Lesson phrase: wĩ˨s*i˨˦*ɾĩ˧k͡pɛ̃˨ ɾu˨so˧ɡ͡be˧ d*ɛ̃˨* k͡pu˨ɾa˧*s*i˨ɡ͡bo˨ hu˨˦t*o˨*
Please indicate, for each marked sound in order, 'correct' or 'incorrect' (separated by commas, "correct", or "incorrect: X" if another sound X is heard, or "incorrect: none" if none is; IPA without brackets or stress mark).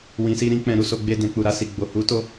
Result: incorrect: i˧, correct, correct, incorrect: o˧